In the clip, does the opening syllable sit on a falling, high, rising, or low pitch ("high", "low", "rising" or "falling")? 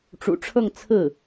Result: low